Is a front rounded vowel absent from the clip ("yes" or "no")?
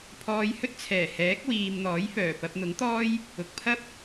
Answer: no